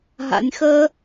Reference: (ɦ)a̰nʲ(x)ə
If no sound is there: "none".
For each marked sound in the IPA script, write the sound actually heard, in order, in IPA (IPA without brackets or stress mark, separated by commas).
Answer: ɦ, x